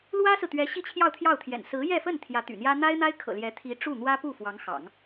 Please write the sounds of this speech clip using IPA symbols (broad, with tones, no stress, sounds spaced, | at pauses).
l w ä˥ s ɹ̩˨ t̪ ɥ ɛ˧˥ ɕ i˥˧ t͡ɕʰ j ɑ˥˧ ʊ̯ t̪ʰ j ɑ˥˩ ʊ̯ t̪ʰ j ɛ̰˨˩ n s ɹ̩˧˥ j ɛ˥˧ f ə˥˩ n t̪ʰ j ä˧˥ t̪ y̰˨˩ n̪ j ä˥ n̪ a˥ ɪ̯ n̪ a˥ ɪ̯ kʰ ɤ̰˨˩ l j ɛ˧˥ t̪ʰ i˧˥ ʈ͡ʂ u˥˩ n̪ w ä˥ p u˥˩ f w ɑ˧˥ ŋ x ɑ̰˨˩˦ ŋ